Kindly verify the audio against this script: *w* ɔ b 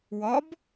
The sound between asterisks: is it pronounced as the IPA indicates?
yes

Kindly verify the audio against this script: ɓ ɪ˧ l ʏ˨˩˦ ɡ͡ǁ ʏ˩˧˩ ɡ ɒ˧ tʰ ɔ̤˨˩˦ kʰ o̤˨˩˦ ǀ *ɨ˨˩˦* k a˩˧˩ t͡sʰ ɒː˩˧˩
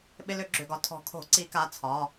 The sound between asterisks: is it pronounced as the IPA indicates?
no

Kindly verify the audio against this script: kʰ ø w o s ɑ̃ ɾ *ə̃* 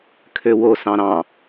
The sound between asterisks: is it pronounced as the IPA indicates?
no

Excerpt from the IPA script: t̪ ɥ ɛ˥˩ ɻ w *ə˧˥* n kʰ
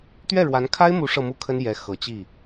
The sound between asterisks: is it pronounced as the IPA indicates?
no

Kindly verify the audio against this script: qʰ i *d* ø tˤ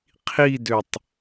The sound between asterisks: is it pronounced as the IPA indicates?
yes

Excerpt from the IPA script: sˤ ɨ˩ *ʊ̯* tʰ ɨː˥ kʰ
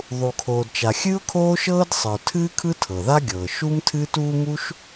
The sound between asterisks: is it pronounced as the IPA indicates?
yes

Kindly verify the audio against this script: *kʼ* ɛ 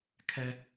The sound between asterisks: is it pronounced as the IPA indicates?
no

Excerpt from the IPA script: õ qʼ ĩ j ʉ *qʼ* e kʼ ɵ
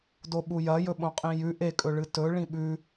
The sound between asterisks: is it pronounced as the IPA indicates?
no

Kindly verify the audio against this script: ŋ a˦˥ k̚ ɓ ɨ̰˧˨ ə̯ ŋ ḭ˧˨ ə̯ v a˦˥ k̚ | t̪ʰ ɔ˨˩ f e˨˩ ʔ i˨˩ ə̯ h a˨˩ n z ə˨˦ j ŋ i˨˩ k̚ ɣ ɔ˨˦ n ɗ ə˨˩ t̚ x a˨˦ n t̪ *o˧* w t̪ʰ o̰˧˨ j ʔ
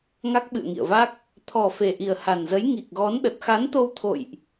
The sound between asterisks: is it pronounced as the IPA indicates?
yes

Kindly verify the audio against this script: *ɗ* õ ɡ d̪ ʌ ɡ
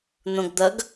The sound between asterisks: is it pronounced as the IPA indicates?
no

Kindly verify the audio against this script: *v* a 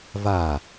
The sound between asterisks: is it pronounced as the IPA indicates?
yes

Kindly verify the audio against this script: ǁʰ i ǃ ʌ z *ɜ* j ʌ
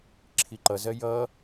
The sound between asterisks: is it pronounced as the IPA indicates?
yes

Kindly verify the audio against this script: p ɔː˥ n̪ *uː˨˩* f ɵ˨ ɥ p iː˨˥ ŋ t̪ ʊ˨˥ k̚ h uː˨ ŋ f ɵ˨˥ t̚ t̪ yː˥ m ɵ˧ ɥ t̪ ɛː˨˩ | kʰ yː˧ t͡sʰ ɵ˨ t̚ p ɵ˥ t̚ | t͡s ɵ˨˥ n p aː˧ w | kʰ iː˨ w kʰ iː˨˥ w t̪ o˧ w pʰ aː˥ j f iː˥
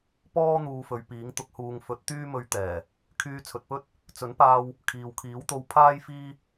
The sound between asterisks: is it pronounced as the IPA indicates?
no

